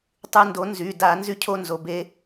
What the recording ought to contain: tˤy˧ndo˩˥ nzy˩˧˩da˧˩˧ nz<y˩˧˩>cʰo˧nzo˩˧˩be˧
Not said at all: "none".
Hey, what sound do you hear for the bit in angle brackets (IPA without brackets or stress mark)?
y˧